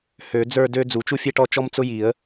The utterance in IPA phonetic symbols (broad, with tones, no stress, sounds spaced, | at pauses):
h ø˨˩˦ d͡z ə˞˥˧ d ø˥ d͡z u˨˩˦ t͡ʃ u˥ fʲ e˥ ʈ ɔ˥˧ t͡ʃ ɔ˥ m t͡s ʊ˥ j i˨˩˦ ə̯